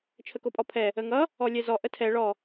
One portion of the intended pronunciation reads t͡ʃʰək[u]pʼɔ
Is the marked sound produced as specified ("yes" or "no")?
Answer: no